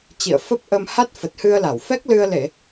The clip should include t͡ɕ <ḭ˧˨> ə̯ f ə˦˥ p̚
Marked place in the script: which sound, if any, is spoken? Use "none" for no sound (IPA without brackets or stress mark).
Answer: ḭ˧˨